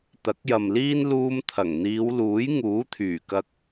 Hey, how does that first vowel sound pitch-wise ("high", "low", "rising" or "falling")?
rising